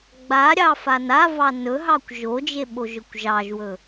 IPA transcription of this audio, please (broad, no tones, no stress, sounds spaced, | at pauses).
ɡ͡b a ɾʲ ɑ f a n a v ɑ n ɵ ɦ ɑ kʷ ʒ o d͡ʒ e ɓ o ʒ ɵ kʷ ʒ ɑ ʒ w ɵ